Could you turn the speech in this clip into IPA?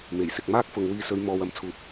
m e˨˩ j s ɪ˨ k̚ m aː˥ k̚ f ʊ˨ ŋ w iː˧ s ɵ˨˧ ɥ m ɔː˨ w ɐ˨˥ m t͡sʰ uː˨ p̚

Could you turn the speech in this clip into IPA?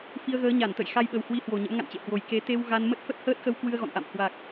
f i˧ ə̯ ɣ əː˨˦ ɲ a˧˩ n t̪ ə̰˧˨ j x a˧ j ɓ ə˨˩ w h w i˨˦ h w o˨˩ ɲ ə̰˧˥ m ŋ a̰˧˨ n t͡ɕ ḛ˧˨ h w o˨˩ j k e˨˦ t̪ e˧ w ɣ a˧ n m ə˦˥ t̚ f ə˦˥ t̚ h əː˦˥ t̚ x ə˧ w k w ɨ˧ ə̯ ɣ ɔ̰˧˨ n ʔ a̰˧˨ m h w a˨˩ k̚

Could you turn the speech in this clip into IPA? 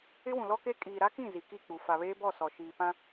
ɪ˦ w ũ˨ l ɔ˦ k e˦ kʼ iː˨ ɾ a˦ k ĩ˦˨ z i˨ k i˦˨ k͡p u˨ f a˨ β eː˦ b ɔ˦˨ s ɔ˨ ʃ iː˨ p ã˦

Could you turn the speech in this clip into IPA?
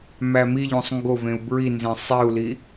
m æ m i ʎ ũ sˤ ŋ ɡ o v ẽ u̯ b ɹ i n z ẽ sˤ i u̯ l i

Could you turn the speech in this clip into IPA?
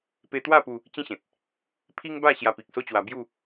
p e˧ t̪ w a˥˧ p u˧ | t͡ɕ ĩ˦ ɕ ẽ˨ t̚ | pʰ i˦ ŋ b a˥˧ ɕ j a˧ p i˨ k̚ s o˦ t͡ɕ w a˧ b j u˥˧

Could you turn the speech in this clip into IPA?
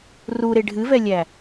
r u ɾ e ɖʱ ɨ v ɛ lʲ æ

